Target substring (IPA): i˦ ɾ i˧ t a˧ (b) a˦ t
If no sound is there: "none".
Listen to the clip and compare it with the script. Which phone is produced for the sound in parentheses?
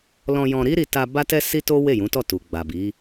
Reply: b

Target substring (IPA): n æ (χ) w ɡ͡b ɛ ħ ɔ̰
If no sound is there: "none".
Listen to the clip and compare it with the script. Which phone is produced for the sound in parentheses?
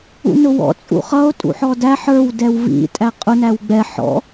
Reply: none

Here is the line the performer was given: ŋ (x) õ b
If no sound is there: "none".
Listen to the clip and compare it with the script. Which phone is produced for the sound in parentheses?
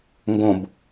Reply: ɡ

